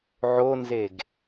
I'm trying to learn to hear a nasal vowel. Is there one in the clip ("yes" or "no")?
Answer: no